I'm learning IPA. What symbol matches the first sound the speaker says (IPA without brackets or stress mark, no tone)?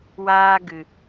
w